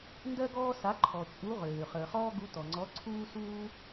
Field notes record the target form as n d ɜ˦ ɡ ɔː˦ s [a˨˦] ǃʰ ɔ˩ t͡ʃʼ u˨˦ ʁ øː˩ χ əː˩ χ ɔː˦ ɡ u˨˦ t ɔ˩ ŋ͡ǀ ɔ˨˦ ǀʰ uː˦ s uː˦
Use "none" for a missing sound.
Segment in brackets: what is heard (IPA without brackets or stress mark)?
a˨˦